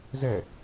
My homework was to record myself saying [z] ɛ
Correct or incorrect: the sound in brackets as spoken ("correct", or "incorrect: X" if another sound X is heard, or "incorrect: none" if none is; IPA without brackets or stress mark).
correct